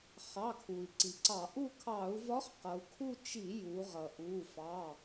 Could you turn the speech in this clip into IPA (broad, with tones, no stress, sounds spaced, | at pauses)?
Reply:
χ ɑ˩˧˩ kʰ u˩ i̯ ǀ i˩ ǀ ɑ˧˩˧ ʔ u˦˨ kʰ ɑ˧˩˧ u̯ v ɒ˧˥ χ q ʌ˩˧ u̯ kʰ u˦˨ t͡ʃ i˧˩˧ j u˩˧ ʁ ʌ˩ ʔ u˩˧˩ f ɑ˩˧˩